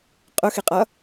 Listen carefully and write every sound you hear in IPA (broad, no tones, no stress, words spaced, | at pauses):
qʼʊxiqʼʌ